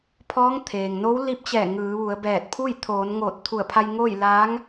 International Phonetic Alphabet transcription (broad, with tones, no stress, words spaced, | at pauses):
pʰɔː˧˥ŋt̪ʰeː˩ŋno˧˥w li˧˥p̚t͡ɕɛː˧˩ ŋɯː˩˧ʋu˩˧ə̯ bɛː˧˩t̚pʰu˥˨j t̪ʰoː˩˧n ŋoː˧˩t̚t̪ʰu˧˩ə̯pʰa˧j ŋoː˥˨j la˧˥ŋ